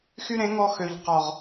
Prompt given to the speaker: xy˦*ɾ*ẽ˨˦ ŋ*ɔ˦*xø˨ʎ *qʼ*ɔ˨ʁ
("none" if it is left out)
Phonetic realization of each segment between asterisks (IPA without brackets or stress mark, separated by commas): ɾ, ɔ˧, q